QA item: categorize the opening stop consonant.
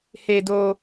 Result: plain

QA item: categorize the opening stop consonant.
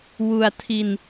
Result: aspirated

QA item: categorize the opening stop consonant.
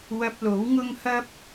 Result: plain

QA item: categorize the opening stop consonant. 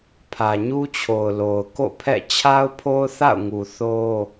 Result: aspirated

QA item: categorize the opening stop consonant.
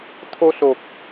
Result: aspirated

